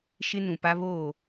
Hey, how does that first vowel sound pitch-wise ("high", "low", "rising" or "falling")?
high